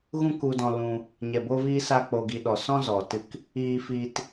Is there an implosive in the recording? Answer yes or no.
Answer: yes